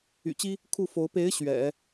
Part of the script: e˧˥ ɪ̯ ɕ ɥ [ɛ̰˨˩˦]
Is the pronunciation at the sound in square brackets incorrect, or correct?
correct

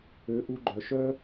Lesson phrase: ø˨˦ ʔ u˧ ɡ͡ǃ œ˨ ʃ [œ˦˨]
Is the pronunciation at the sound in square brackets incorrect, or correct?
incorrect: œ˦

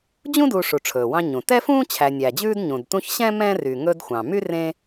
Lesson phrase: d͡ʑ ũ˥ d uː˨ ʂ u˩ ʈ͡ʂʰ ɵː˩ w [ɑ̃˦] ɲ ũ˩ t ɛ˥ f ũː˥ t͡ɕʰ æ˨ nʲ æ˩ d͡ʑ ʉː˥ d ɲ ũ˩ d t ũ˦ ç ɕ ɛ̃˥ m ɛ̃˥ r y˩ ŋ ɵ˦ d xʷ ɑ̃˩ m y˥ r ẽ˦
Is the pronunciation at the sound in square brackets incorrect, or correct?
correct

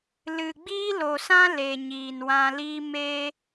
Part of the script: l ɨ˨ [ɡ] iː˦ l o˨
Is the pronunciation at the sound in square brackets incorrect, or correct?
incorrect: ɡ͡b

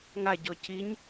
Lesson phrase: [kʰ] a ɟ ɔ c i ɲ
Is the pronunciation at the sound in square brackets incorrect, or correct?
incorrect: ŋ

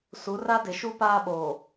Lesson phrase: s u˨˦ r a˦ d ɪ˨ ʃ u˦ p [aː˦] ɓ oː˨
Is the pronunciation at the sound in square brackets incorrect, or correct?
correct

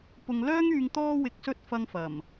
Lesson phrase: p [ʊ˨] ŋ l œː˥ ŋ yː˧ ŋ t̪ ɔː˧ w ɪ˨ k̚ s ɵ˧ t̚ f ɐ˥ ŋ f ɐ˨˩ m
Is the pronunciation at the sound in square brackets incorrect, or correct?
correct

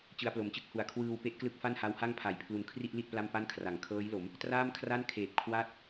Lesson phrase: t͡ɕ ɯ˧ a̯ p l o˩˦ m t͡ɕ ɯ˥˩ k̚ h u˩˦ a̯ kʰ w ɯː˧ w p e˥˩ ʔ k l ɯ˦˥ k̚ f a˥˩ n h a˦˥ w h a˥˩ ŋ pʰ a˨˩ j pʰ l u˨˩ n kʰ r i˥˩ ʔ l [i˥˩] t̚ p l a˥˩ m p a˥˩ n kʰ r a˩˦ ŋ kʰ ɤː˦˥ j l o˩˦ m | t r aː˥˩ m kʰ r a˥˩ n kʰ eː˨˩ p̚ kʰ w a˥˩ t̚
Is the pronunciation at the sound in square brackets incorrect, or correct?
correct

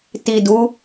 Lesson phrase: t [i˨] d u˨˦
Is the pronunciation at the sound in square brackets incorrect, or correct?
correct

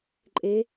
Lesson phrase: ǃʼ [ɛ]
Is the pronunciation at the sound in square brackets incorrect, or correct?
incorrect: e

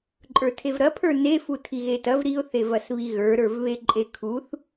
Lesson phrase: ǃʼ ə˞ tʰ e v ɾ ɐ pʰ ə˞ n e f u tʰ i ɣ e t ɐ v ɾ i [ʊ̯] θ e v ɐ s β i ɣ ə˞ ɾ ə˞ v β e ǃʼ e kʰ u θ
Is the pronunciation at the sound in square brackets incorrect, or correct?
correct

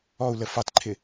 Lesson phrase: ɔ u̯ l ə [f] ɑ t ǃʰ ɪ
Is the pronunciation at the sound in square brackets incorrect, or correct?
correct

